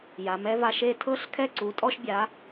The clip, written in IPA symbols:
j a˩˧ m ɛ˥ v a˧ ʃ e˥˧ tʰ ɤ˥ ɬ kʰ ɛ˥˧ ǀ u˩˧ tʼ ɔ˧ ʃ bʲ a˩˧

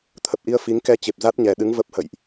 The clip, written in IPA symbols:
t̪ʰ ə˨˩ p̚ ʔ i˧ ə̯ f i˨˦ ŋ k ɛ˧ t͡ɕ e˨˩ p̚ z a˦˥ t̚ ɲ ɛ˨˩ ɗ ɨ˨˦ ŋ v ə˦˥ p̚ h ə̰˧˨ j ʔ

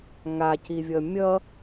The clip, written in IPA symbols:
ŋ a c i vʲ ʌ mʲ ʌ

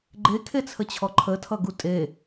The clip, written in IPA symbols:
ɡ͡ǃ e kʰ e t͡sʰ ə t͡ɕʰ ɔ ǃʰ ə tʰ ʌ ɡ u tʼ e

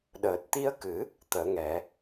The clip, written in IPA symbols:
ɗ əː˨˩ t̚ t̪ i˧ ə̯ k ɨ˨˩˦ | t̪ əː˨˩˦ ŋ ɛ˨˩˦

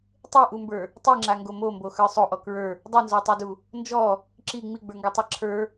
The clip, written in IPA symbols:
tˤ e ʔ u m b ə˞ | tˤ i ŋ͡ǁ a ŋ ɡ o m o m b o x ə˞ sˤ o ʔ ɔ k ɹ ə˞ | dˤ u n z ɔ tˤ o d u | n d͡ʒ ɔ | ǁ i ŋ͡m i ɡ͡b ə˞ ŋ ɡ ɔ tˤ a ǁʰ ə˞

